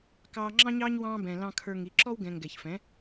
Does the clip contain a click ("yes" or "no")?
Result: yes